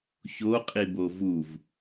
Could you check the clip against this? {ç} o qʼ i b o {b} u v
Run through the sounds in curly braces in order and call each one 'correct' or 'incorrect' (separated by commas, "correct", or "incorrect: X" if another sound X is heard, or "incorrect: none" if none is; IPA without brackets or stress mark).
correct, incorrect: v